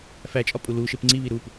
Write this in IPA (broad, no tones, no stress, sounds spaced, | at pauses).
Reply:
f æ t͡ʃʼ ɒ pʼ u l u ʃ e p ŋ͡ǀ i β i ɾ u p